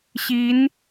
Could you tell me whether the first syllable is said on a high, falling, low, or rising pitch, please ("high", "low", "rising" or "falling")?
rising